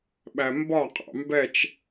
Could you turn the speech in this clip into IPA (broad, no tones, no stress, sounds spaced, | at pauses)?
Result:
ɓ æ m b ɒ qʼ ɑ̰ m b ɛ t͡ʃ